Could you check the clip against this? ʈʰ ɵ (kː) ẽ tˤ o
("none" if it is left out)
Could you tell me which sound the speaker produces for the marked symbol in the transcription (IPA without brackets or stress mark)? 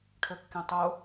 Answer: kː